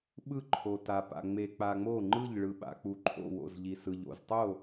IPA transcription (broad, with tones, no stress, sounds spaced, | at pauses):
ɓ ɯ˥˩ ǃʰ o˩ t a˩ p a̰˩ ŋ͡m e˩ k͡p a˩ ŋ͡m o˥˩ ŋ͡ǃ ɯ˥˩ ʎ ɭ ɯ˩ ɓ a̰˩ k͡p u˩ ǃʰ o̰˥˩ w o̰˥˩ z ʎ i˩ s ɯ˩ ʎ o̰˩ z tˤ o˥˩